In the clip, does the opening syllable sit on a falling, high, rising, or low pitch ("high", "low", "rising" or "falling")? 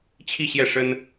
falling